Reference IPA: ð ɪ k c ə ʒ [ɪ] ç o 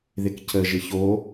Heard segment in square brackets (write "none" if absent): ɪ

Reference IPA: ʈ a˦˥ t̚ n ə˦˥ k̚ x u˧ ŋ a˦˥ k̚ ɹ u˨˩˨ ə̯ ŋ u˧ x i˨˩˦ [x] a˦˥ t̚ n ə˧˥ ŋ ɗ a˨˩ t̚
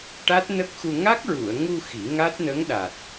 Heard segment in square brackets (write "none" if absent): ŋ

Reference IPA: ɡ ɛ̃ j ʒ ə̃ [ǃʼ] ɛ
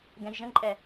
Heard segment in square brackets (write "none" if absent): ǃʼ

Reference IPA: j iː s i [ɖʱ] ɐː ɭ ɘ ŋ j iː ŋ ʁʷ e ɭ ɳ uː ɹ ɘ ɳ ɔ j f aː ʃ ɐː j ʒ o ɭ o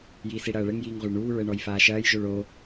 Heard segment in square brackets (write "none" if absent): ɽ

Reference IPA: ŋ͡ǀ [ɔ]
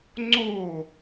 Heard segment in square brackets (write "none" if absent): o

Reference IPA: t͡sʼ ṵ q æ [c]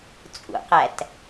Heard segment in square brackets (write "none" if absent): t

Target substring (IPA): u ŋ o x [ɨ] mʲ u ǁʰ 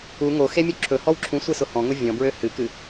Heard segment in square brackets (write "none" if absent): e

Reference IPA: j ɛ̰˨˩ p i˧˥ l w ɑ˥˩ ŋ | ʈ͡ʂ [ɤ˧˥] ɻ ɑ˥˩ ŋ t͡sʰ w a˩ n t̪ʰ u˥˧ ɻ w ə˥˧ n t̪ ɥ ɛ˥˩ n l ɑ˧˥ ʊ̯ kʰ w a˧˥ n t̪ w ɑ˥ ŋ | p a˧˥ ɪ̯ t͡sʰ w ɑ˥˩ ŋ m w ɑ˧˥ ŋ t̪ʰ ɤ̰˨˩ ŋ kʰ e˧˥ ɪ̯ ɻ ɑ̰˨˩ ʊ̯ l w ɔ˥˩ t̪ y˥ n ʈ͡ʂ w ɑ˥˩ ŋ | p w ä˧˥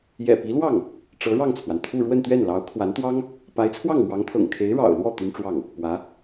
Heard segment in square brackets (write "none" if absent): ɤ˧˥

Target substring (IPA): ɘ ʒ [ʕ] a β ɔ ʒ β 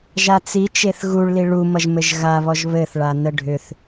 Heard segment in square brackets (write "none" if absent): ɣ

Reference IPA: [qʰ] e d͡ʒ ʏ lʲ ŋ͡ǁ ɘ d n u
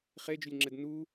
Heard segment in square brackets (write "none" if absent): χ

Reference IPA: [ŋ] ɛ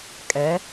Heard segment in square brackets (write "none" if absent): kʼ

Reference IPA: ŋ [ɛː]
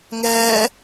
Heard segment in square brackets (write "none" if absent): ɛː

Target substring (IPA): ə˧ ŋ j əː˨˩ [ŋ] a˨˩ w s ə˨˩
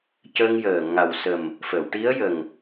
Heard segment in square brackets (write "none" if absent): ŋ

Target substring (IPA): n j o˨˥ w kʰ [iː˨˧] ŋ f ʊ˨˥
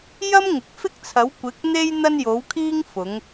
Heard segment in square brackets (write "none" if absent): iː˥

